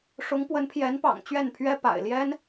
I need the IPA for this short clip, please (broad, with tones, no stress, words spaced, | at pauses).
ʂʊ˧˥ŋpwə˧˥npʰjɛ˧˥npɑ̰˨˩ŋ t͡ɕɥɛ˥˩npʰɥɛ˥pa̰˨˩ɪ̯ ljɛ˥n